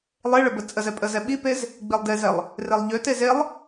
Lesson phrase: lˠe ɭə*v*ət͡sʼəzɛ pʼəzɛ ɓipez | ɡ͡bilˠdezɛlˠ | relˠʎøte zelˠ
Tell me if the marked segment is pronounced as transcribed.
no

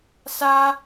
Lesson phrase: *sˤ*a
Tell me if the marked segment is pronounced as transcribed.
no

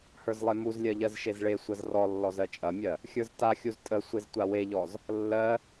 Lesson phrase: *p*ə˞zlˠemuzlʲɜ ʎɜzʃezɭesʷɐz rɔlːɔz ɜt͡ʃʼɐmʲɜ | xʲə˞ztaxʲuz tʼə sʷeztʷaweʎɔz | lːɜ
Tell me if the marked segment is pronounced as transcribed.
no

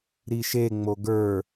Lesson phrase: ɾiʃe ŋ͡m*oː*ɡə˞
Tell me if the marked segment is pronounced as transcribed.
no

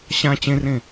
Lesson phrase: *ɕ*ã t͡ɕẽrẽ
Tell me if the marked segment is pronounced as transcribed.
yes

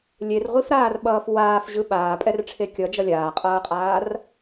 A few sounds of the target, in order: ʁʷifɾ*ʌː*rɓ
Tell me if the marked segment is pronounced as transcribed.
no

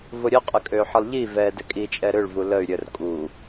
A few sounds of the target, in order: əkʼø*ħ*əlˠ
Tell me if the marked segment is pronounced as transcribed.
yes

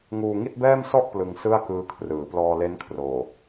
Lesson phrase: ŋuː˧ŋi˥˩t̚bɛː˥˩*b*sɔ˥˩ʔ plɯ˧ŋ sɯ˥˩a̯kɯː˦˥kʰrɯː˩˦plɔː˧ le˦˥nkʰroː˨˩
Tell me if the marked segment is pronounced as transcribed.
no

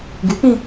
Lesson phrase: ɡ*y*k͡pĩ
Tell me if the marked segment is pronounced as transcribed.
yes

